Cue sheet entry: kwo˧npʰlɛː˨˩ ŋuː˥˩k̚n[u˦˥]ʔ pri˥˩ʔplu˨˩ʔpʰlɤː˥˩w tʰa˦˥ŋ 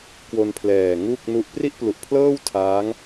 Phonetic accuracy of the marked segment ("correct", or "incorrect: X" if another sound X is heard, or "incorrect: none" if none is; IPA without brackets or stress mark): correct